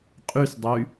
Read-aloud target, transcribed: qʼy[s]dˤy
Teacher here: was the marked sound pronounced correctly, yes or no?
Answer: yes